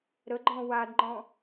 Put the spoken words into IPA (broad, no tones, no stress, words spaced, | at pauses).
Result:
ɾəɡ͡ǃɔ̃ wadŋ͡ǃɔ̃